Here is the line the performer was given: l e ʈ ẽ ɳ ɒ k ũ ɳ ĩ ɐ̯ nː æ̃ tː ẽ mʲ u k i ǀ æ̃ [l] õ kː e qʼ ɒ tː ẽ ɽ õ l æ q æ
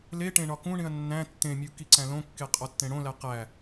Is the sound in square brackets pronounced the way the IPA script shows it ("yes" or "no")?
yes